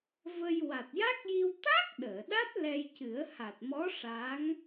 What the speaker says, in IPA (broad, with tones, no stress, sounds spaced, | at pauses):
v ə˧ j w a˨˩ t̚ j a˦˥ k̚ j i˧ w t̪ a˦˥ k̚ ɗ əː˨˩˨ ɗ a˦˥ t̚ l ɛ˧ j c ɨ˨˩˦ ə̯ h a˨˩ t̚ m ɔ˧˥ ʂ a˧˥ ŋ